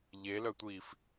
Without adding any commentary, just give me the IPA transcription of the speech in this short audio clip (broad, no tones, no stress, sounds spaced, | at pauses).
ʎ e l œ tʷ iː f